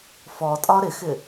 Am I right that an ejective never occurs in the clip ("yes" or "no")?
no